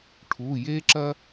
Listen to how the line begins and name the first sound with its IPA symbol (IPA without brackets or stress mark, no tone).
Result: ʈʰ